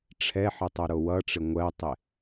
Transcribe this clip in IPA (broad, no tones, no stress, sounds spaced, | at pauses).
ʈ͡ʂʰ ɛ ħ ɪ tˤ o ɾ o w ʌ ʈ͡ʂ ɪ ŋʷ ɜ tˤ ɪ